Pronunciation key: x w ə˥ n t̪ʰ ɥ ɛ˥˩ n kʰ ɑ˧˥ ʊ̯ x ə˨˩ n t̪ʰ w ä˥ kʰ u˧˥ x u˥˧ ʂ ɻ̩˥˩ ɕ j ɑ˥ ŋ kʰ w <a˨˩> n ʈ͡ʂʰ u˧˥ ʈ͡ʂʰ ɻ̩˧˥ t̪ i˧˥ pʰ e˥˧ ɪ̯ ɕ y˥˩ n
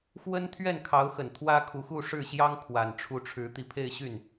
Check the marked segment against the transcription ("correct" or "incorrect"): correct